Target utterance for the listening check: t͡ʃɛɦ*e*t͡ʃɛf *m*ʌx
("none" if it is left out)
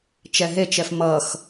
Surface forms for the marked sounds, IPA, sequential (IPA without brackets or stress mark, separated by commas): e, m